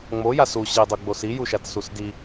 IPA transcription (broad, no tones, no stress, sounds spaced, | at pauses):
ŋ͡m o j a s u ɕ i dˤ o ɡ͡b o s i j u ʃ a t s u s d i